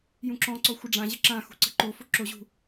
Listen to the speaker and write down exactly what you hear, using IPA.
j ũ ǁ ɔ̃ ǀ ɔ xʷ ə ɖ͡ʐ ã ʑ ə ǁ ã x ṳ ǀ ə̤ ǃ o f ʊ ǁ o ʑ ṳ

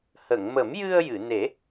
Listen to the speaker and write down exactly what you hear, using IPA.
h ə˨˩˨ ŋ m ə˨˩˦ m j ɨ˧ ə̯ j ɨ˨˩˨ n e˨˩˦

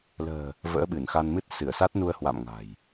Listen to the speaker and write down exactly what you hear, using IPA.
l ə̤ː˨˩ | v ə̰ː˧˥ ɓ ɨ˧˩ n x a˧ n m ɨ˦˥ t̚ s ɨ˧˩ ə̯ s a˦˥ t̚ n u˧ ə̯ h w a̰˧˨ m ŋ a̤˨˩ j

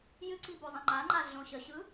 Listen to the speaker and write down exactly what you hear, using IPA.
j ɨ ǀ i b o zˤ ə̃ ŋ͡ǃ a ŋ͡ǃ a ɮ õ ɕ ə ɕ ɯ

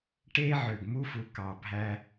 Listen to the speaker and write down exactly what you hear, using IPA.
ʈ e˦ ʕ ø˨ ɡ m u˦ f u˨ k ɑ˨ bʱ æ˦

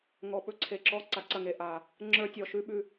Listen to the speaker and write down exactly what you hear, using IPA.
ŋ ɔ˨ ɓ ɵ˦ ǀʰ e˨ ǁ ɔ˦ ǀ a˨ ǀ ɐ˦˨ ŋ e˨ ʔ a˨ | ŋ͡ǁ ə˞˦ tʲ ɔ˨ ʃ ʉ˦ ɓ ʉ˨

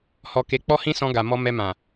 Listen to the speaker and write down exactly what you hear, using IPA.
h ɔ˧ k e˧ k͡p ɔ˦ h ĩ˦ s ɔ̃˧ ɡ a˨ m ɔ˧ m ɛ˧ m ã˨

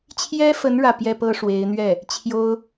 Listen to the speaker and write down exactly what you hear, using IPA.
t͡ɕʰ j ɛ˥ f ə˧˥ n ɻ ä˥˩ p j ɛ˥ p ɤ˥ ʂ w e˧˥ ɪ̯ n̪ ɥ ɛ˥˩ | t͡ɕʰ j o˥ ʊ̯

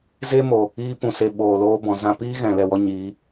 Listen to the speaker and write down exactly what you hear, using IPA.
z e˦ m o˨ | iː˧ p ũ˨ s e˨ ɓ oː˨ l oː˧ b ɔ̃˨ z ã˧ p iː˦ ɣ ɛ̃˨ l ɛ˦˨ w ɔ˦ ɲ iː˨˦

